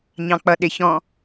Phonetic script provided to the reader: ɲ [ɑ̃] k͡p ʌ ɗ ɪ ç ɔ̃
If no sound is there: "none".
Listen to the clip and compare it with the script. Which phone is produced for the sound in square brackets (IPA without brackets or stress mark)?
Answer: ɑ̃